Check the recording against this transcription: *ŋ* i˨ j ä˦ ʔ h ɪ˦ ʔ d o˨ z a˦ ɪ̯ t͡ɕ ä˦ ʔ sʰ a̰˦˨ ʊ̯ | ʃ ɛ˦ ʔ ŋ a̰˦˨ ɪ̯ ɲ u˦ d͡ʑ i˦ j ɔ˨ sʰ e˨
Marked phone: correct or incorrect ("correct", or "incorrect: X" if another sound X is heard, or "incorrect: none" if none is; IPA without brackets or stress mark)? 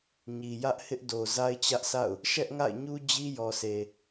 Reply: incorrect: ɲ